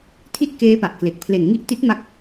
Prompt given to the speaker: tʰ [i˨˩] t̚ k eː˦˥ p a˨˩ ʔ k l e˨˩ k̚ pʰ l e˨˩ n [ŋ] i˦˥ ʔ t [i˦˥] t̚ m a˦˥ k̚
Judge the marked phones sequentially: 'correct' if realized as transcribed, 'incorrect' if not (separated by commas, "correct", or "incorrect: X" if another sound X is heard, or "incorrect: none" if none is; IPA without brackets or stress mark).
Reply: incorrect: i˦˥, correct, correct